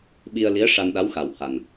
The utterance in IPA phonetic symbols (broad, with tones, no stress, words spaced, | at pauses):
ɓi˧ə̯li˧˥ə̯ ʂa˧nɗa˧˥wxa˨˩w ha˨˩n